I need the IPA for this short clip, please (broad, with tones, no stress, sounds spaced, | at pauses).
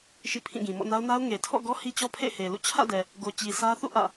ʃ ḭ˦˨ pʰ ĩ˦˨ ɡ ĩ˨ m ɔ̰˦˨ n a˦ ʊ̯ n a˦ ʊ̯ ŋ e˨ tʰ ɔ̰˦˨ ɡ ɔ˦ h i˦ t͡ɕ ɔ˦ pʰ ḛ˦˨ ɪ̯ h e˨ l ṵ˦˨ t͡ɕʰ ä̰˦˨ d ɛ˨ | ɡ o˨ t͡ɕ i˨ sʰ ä˦ θ ṵ˦˨ ʔ ä̰˦˨